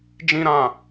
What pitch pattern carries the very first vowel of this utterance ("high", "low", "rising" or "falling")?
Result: high